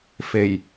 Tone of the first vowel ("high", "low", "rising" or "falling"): low